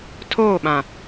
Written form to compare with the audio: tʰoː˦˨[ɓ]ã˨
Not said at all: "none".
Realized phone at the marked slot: ɓ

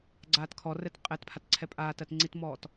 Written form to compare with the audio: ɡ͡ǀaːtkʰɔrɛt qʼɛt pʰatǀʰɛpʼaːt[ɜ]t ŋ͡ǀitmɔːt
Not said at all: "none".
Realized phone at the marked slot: ɜ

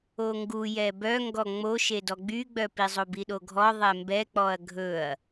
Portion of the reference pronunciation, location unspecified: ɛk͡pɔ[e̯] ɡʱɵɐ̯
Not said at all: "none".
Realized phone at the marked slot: ɐ̯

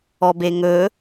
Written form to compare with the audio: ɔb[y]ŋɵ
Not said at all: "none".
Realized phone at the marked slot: e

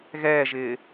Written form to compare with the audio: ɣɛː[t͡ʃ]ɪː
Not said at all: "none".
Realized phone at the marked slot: ʒ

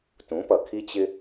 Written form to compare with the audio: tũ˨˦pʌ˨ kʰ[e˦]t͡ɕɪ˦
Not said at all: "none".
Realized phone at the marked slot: i˦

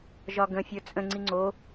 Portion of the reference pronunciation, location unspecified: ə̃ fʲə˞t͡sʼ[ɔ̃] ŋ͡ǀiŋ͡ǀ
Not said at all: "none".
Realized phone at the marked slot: ə̃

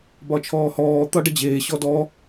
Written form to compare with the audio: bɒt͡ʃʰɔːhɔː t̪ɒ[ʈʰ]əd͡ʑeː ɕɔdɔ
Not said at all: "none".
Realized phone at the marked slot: ɖ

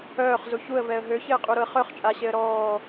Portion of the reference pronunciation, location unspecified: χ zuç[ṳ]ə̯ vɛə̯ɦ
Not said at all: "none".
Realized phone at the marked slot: u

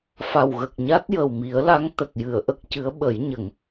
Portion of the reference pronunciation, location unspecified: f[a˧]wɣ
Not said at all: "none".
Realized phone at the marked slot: a˨˩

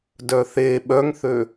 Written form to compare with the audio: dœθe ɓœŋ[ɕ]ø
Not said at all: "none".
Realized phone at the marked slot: θ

